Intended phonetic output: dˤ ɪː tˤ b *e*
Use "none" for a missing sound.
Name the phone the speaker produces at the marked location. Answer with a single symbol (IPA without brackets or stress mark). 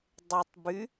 y